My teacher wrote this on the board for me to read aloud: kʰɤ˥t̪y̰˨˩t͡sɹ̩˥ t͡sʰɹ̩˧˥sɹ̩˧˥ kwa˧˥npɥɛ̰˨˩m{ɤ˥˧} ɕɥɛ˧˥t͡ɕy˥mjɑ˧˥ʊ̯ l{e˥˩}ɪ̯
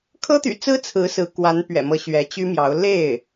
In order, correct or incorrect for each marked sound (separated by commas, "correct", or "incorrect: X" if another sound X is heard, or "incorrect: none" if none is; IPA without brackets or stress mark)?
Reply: incorrect: ɤ˧˥, correct